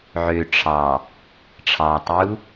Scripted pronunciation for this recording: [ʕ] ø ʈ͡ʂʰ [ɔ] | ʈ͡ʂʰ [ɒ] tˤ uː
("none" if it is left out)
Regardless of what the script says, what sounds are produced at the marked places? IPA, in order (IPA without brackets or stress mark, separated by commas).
ʕ, ɑ, ɑ